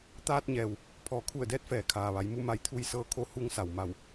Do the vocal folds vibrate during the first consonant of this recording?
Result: no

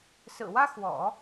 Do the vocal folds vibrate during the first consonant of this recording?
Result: no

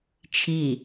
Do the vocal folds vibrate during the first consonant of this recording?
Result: no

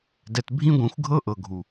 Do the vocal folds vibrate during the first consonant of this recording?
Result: yes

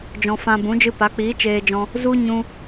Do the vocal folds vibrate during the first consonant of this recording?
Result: yes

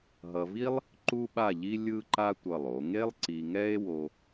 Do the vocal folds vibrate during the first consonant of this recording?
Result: yes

